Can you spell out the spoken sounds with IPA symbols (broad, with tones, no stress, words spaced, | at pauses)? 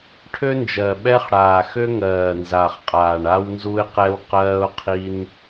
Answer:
ʈʰø˥nd͡ʒɜ˨˩ ɓɛ˥χɽaː˨˩ xø˥ŋɜː˨˩nza˨˩χqʼaː˨˩ɳ a˥wnzu˥ɪ̯qɛ˥w qɜː˥ʊ̯qʰi˥n